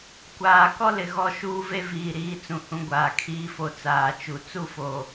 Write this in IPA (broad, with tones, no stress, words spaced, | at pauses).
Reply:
kʷaː˨kɔ˦lɪ˨ ɣɔ˦ʃuː˦ve˦ viː˨ɾiː˨˦ t͡sũ˨hũ˦ɡʷaː˨ kʰiː˨fo˨ t͡saː˨t͡ʃu˨ t͡su˦fo˨